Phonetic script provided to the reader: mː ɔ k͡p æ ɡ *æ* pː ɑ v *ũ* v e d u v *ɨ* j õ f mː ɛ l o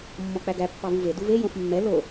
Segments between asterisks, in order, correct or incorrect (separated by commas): correct, incorrect, incorrect